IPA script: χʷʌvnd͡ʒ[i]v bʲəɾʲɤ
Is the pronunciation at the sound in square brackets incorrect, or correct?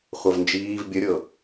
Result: incorrect: iː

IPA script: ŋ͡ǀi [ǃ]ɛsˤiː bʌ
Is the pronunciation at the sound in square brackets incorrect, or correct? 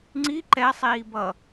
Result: correct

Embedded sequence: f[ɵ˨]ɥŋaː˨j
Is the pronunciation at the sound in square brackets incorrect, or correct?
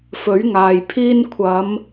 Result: incorrect: ɵ˨˥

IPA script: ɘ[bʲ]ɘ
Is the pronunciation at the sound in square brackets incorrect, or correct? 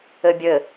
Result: correct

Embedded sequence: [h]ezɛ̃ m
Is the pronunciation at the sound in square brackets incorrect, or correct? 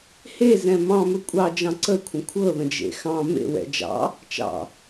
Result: correct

